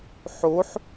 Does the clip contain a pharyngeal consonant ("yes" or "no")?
yes